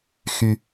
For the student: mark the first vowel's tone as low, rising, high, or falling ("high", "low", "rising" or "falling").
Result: low